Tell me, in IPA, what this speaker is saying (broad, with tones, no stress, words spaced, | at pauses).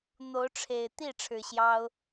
n̪o˨˦ʊ̯ʈ͡ʂʰe˨˩ɪ̯ t̪i˥˨ ʈ͡ʂʰɻ̩˨˩ɕjɑ˦ʊ̯